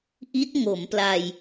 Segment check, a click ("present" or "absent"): absent